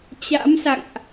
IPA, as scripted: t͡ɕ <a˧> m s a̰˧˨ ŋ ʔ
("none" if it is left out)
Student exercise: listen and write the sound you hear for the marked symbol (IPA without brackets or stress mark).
a̰˧˥